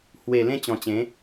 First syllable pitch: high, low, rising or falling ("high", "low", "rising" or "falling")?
low